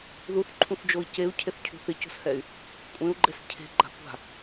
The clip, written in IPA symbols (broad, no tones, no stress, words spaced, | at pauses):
ðuθǃʰũθd͡ʒoi̯ ceu̯cʰeθcʰṳ θɪco̤shɛy̯ | kʷʼẽu̯ɡ͡ǃɛs cʰe̤ɡ͡ǃa̤ kʷa̤